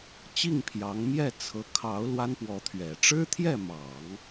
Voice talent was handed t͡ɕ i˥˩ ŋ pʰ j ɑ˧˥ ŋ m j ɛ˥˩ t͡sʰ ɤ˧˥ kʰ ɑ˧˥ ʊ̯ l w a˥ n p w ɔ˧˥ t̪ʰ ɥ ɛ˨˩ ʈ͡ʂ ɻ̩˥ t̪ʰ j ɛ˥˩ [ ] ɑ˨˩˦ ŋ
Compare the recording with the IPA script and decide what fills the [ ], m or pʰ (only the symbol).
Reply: m